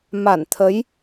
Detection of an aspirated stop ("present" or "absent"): present